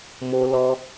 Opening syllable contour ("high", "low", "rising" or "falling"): high